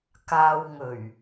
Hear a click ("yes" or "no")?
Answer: no